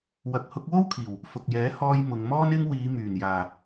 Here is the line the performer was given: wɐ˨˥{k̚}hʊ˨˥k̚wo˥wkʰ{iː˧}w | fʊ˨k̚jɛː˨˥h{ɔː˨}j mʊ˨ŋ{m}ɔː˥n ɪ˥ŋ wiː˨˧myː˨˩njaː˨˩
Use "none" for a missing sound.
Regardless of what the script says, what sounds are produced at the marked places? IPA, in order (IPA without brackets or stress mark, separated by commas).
k̚, iː˨˩, ɔː˧, m